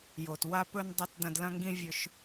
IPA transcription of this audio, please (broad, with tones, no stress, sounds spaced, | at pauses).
j o˨ t w a˥ p ɵ˥ n dˤ ɐ˥ t d ɐ̃˦ d l ɐ̃˥ ŋ ɡ ĩ˥ vʲ ɵ˦ ʃ